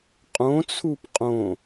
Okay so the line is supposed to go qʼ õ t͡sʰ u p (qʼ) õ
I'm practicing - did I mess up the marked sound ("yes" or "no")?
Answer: no